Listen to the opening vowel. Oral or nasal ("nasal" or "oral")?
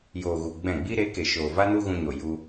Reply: oral